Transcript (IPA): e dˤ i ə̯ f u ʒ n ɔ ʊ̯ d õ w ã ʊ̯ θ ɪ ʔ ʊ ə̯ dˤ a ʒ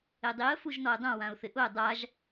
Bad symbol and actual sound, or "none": d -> dˤ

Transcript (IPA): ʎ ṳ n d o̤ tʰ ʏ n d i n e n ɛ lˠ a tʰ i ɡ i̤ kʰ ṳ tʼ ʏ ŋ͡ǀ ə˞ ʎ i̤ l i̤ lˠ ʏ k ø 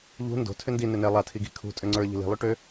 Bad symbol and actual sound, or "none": k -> ʈ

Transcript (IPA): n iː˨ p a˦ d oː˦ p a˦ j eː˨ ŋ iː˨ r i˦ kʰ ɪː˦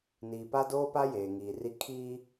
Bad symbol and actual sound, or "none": ɪː˦ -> iː˦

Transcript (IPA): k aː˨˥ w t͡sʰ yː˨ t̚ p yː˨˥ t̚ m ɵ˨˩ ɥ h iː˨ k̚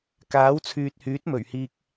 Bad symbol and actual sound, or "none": p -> h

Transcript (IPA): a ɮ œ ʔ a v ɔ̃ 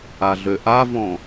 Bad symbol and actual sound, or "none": œ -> ø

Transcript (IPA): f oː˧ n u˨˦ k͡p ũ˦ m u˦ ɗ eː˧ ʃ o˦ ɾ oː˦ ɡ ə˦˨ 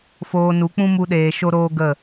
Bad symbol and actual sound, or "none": none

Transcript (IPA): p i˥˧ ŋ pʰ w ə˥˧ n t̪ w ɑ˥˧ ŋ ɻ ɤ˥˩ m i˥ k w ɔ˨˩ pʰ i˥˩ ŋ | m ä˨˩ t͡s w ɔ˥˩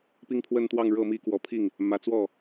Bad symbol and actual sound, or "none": none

